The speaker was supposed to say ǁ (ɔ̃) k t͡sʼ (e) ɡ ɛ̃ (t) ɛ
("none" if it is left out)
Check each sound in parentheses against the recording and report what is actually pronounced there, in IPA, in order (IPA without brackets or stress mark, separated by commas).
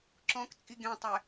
ɔ̃, i, tˤ